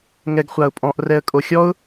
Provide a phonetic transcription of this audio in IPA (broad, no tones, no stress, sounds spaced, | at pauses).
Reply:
ŋ ɛ ɡ χʷ a ʊ̯ pʼ ɔ̃ ʔ r ɛ ə̯ kʼ o xʲ ɔ ʊ̯